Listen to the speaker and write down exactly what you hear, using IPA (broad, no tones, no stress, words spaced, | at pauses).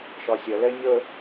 ʃɒsʲɐlɛ ɲə